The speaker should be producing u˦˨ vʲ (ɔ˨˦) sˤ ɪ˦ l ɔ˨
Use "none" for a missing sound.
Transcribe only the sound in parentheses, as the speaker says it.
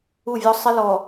ɔ˦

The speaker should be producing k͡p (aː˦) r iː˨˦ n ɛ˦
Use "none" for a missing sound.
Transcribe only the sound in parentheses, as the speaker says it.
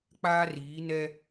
aː˦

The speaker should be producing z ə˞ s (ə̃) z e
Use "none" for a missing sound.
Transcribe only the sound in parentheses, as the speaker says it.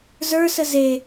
ə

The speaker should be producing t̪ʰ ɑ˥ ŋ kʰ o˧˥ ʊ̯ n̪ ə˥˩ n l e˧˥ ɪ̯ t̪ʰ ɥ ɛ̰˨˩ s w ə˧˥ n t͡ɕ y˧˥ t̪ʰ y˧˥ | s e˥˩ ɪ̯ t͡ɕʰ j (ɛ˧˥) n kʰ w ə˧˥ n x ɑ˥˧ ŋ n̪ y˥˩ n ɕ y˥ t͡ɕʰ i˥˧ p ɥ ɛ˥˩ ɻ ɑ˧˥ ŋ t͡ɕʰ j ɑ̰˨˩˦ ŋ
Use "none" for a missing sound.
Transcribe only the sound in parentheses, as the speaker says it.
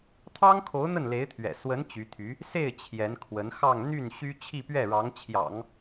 ɛ˧˥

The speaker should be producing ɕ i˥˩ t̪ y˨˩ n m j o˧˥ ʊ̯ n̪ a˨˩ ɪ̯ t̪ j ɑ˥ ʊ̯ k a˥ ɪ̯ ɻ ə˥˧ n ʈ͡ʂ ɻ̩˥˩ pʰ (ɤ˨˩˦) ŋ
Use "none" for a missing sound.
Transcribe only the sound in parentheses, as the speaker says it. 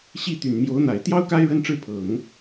ɤ˨˩˦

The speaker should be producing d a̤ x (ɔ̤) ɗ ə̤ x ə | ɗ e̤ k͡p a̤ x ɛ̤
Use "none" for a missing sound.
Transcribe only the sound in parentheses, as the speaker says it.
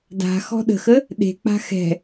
ɔ̤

